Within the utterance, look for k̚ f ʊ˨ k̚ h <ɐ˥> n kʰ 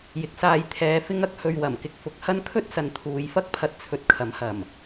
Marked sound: correct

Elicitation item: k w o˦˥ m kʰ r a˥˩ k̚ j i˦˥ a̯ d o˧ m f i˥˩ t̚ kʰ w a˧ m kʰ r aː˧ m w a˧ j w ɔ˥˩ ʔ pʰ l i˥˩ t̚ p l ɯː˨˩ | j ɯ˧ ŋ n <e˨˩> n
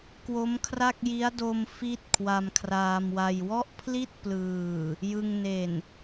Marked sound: correct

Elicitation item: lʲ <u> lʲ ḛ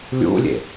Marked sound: incorrect: ṵ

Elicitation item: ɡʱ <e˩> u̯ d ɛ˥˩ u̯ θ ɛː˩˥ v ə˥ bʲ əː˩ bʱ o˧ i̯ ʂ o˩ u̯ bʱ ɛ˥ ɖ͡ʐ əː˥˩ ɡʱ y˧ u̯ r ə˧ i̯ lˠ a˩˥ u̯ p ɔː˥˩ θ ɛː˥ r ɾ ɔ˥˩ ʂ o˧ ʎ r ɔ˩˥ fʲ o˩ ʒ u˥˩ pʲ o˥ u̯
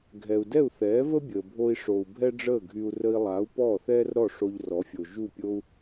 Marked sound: incorrect: ɛ˩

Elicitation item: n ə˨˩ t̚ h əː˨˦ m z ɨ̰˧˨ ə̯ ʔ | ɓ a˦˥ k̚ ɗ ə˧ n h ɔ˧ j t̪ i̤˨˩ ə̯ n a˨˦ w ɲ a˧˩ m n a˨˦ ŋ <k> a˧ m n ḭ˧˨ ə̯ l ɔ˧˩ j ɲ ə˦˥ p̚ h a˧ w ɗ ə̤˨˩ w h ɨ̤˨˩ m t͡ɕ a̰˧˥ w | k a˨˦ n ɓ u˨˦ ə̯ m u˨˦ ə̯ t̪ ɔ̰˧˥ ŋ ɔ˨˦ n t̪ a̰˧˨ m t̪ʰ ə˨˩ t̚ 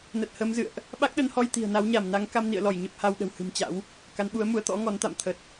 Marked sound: correct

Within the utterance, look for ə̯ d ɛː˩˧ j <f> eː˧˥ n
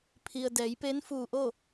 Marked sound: incorrect: p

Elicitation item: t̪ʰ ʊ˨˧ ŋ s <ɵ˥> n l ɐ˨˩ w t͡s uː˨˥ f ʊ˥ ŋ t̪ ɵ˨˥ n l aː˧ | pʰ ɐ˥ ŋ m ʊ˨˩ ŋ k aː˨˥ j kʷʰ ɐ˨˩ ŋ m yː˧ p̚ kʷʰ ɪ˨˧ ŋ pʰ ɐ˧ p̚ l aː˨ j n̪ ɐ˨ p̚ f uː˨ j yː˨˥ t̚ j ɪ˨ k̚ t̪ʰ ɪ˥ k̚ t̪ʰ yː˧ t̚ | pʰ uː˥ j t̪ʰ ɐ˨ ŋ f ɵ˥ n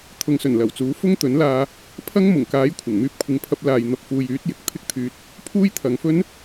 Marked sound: incorrect: ɵ˨˩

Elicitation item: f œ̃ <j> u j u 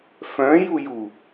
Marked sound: correct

